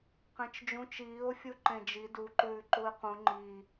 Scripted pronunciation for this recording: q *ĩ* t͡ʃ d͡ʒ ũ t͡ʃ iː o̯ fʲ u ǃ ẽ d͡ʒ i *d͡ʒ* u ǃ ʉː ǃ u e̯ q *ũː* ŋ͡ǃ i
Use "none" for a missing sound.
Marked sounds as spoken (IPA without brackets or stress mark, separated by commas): ẽ, d, ũ